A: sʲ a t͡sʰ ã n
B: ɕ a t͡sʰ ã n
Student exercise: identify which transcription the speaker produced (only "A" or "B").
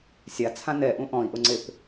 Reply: A